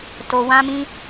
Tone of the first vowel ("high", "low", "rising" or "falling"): high